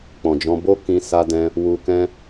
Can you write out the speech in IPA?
k͡pɔ̃˨d͡ʒɔ̃˧bo˦ kĩ˧ sa˧dɛ̃˧ | wu˧ kɛ̃˦

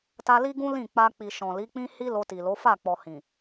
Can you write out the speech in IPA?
ta˧li˦ɡũ˦ lĩ˦˨k͡pa˧k͡pi˨ ʃɔ̃˨li˨˦k͡pĩ˦ hi˦ lo˧ti˨lo˨˦ fa˦˨k͡pɔ˨ hĩ˨

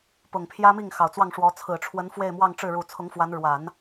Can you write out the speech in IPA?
pʊ˨˩ŋpʰjä˥mi˥˩ŋ xɑ˨˩ʊ̯t͡swɑ˥˩ŋʂwɔ˧˥ t͡sʰɹ̩˨˩ʈ͡ʂʰwə˧˥n fwe˥˧ɪ̯mwɑ˥˧ŋʈ͡ʂɻ̩˥˩ɻu˨˩ t͡sʰʊ˧˥ŋfwa˧˥n ɻwa˨˩˦n

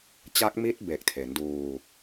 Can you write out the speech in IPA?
t͡ɕa˦˥k̚mi˦˥t̚be˨˩k̚ tʰe˩˦nduː˧

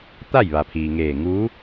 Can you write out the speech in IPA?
t̪a˥˨jʋa˩pʰiː˩ŋeː˧˩ ŋuː˧˥

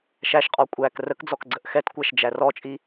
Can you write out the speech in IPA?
ʃæʃqʼɔ kʷʼæk rəkd͡zɔkɡ͡ǀəʔ xɛtkʷæʃd͡ʒæ rɔt͡ʃʼi

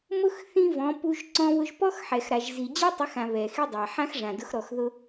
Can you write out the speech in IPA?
mʊ˦x θĩ˦vɔ̃˨˦ pu˧ʒ ǀɔ̃˧βʊ˧ʒpɔ˦xħɛ˨x ɾa˨ʒzi˨ d͡ʑe˦tˤɪ˨˦xã˨ βɛ˨ xi˦dˤa˨ ħã˦xʐã˨dʊ˨˦x ɾɔ˨xðʊ˧

